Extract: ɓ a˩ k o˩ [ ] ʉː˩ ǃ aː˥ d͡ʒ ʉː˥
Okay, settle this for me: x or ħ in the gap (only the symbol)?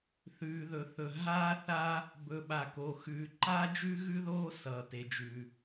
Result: x